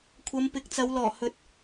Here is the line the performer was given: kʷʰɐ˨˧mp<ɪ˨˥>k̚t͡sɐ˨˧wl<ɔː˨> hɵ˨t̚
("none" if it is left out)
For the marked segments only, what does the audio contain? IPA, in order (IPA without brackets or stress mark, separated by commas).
ɪ˨˥, ɔː˨˩